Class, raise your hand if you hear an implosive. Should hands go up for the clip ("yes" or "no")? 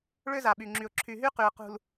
yes